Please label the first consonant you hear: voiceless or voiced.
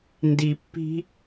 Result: voiced